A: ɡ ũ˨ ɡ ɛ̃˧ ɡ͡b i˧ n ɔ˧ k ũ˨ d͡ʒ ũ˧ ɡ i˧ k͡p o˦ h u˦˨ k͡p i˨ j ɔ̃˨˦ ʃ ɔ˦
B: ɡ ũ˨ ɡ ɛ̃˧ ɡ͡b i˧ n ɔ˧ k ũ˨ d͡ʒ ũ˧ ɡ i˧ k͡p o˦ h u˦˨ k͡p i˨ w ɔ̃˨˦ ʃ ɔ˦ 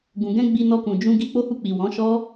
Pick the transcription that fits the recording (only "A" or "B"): B